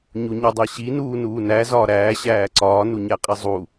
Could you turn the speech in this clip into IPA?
ɲ u ɲ ɒ dˤ æ ɕ i n uː n uː n æ z ɒː ɾ æː ɕ æː ǀ ɒː n u ɲ æ qʼ i zˤ u

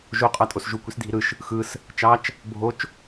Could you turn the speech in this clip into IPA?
ʒ o qʼ ɑ tʼ o s ʒ u kʷ i s dʱ i ɾ ɯ ʃ | x ɯ s | t͡ʃ ɑ t͡ʃ | bʱ o t͡ʃ

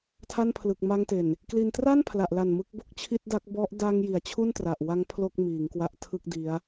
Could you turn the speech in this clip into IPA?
tʰ a˥˩ n pʰ l ɯ˨˩ k̚ m a˧ ŋ t e˨˩ n | k l i˧ n t r a˥˩ n pʰ l a˨˩ ʔ l a˨˩ n m ɯ˦˥ k̚ b o˦˥ k̚ t͡ɕʰ i˥˩ t̚ d a˦˥ k̚ b ɔ˦˥ ʔ d a˧ ŋ j i˩˦ a̯ t͡ɕʰ u˥˩ n t r a˨˩ ʔ w a˦˥ ŋ pʰ l o˥˩ k̚ m iː˩˦ ŋ k w a˦˥ ʔ tʰ ɯ˥˩ k̚ d i˦˥ a̯

